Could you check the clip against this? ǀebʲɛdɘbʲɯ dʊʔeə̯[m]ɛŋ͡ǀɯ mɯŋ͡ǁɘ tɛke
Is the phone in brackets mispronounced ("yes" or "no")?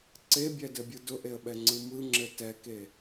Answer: yes